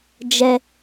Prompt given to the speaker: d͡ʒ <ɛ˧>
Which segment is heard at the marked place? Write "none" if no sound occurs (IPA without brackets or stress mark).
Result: ɛ˧